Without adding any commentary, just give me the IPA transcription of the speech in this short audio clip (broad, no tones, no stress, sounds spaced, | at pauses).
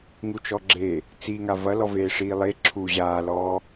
ŋ u t͡ʃ ɔ ɡ͡ǁ e | t͡s i ŋ a v ɐ l ɔ v eː ʂ iː lˠ e ǁʰ u ʑ aː l ɔː